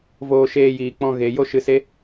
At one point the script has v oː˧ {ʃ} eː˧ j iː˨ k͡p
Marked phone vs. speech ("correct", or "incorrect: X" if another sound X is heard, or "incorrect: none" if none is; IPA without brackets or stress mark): correct